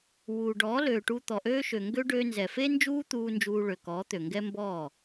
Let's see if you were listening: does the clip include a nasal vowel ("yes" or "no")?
no